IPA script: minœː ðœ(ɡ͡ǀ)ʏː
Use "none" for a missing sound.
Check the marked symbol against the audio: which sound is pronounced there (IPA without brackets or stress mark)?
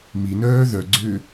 ɡ͡ǀ